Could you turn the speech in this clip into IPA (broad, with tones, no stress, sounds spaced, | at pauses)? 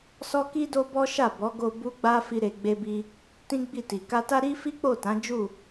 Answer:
s ɔ˦ k i˦ d o˦ b ɔ˦ ʃ a˦˨ b ɔ˨˦ ɡ o˧ b u˦ ɡ͡b a˦ f i˦ ɾ e˧ ɡ͡b e˦ b i˦ | t ĩ˦ ɡ͡b i˦˨ t i˨ k a˧ t a˦ ɾ i˦ f i˦ k͡p o˦˨ t ã˨˦ d͡ʒ u˦˨